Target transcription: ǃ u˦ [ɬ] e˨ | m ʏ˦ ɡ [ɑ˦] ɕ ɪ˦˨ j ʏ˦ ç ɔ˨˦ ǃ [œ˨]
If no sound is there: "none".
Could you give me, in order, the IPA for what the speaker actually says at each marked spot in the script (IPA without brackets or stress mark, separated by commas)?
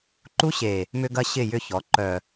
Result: ɕ, ɐ˦, œ˨